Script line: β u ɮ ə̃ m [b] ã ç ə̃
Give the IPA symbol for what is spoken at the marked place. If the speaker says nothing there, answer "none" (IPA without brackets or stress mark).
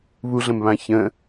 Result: β